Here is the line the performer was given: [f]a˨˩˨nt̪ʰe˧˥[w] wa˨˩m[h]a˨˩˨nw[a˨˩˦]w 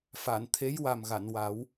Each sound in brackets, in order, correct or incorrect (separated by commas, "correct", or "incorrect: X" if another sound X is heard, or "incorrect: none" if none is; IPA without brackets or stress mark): correct, incorrect: j, incorrect: ɣ, correct